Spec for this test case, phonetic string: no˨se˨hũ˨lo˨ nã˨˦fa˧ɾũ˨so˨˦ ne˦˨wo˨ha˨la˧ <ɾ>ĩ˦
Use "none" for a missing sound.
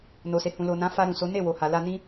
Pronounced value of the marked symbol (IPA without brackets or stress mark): n